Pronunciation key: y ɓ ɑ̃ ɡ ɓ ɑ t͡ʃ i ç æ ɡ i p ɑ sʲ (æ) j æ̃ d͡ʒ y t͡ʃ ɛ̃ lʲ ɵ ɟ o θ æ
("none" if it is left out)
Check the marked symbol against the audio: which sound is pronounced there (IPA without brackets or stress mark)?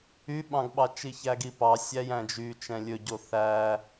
æ